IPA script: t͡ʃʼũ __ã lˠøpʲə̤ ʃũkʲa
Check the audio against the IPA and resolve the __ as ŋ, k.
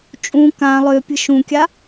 k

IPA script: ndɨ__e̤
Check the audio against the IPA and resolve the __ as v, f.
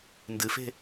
f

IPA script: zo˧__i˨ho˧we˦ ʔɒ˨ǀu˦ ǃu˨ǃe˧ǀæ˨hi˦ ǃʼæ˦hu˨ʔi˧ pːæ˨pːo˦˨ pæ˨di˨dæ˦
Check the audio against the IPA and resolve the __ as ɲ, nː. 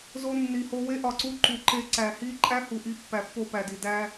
nː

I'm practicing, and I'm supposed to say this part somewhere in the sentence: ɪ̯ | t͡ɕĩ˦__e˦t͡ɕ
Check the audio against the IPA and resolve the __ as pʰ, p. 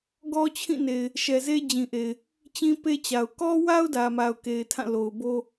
p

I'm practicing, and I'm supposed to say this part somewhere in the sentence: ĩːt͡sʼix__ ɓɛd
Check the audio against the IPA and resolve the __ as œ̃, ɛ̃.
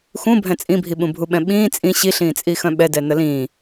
œ̃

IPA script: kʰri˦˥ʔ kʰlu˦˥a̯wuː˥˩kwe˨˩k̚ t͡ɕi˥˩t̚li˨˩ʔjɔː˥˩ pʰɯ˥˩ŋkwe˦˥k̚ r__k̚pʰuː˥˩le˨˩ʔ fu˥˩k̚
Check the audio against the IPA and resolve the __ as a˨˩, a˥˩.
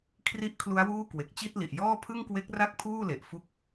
a˥˩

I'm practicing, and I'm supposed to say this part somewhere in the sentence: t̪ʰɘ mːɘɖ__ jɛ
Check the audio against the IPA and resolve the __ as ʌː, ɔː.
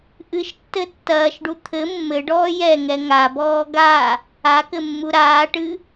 ɔː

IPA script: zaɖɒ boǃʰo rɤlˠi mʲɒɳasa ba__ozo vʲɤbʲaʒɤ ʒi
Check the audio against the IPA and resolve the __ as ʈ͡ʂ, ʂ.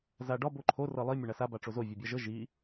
ʈ͡ʂ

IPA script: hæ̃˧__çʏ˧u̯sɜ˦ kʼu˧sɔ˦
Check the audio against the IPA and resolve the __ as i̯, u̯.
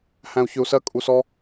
u̯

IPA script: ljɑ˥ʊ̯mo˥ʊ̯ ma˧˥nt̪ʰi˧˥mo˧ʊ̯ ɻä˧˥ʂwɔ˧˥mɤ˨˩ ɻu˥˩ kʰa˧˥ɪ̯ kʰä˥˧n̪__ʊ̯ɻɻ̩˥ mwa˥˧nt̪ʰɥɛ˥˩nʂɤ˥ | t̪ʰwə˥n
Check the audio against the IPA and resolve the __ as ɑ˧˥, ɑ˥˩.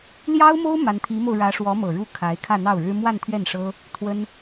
ɑ˥˩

